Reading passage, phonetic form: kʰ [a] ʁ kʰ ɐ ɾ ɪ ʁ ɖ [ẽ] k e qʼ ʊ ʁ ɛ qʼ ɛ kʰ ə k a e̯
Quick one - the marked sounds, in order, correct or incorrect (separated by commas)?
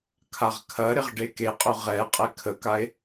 correct, incorrect